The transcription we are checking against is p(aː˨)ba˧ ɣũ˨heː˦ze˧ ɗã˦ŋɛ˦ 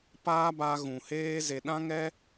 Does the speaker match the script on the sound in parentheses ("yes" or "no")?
no